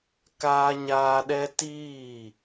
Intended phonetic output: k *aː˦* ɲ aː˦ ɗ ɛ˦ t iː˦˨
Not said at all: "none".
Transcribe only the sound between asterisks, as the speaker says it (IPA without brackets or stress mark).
aː˦